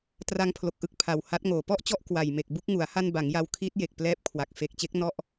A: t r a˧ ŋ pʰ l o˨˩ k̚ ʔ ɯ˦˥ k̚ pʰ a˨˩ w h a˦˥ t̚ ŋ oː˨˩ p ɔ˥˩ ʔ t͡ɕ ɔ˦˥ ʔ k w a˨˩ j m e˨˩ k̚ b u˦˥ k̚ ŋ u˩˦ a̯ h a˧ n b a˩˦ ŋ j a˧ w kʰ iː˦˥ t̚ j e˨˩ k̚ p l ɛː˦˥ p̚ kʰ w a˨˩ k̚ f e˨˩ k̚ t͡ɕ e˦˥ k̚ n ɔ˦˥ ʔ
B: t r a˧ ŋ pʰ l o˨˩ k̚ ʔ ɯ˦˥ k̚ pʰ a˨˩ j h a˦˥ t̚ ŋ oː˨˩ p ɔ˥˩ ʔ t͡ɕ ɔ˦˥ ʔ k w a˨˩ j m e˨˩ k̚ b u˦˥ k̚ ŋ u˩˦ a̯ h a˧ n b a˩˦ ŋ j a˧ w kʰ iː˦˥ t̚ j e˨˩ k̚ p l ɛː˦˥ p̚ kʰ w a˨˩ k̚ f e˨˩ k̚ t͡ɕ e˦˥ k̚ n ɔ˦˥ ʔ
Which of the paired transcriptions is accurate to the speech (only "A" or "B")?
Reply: A